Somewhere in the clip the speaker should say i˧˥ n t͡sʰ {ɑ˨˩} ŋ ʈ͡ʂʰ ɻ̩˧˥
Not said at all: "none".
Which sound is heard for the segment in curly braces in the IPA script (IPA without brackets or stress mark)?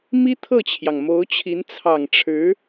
ɑ˨˩